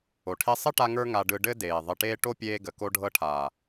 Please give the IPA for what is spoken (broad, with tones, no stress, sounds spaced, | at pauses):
o˨ ʈʰ e˧ sˤ ɘ˦ ʈ a˧ ŋ ə˞˧ ŋ a˧ ɖ ɯ˧ ɖ ɘ˦ d eː˨ ðˤ ɘ˨ ʈ eː˧ ʈ o˦ pʲ eː˧ ɡ ə˨ k o˧ ɖʱ ɤ˧ ʈʰ aː˨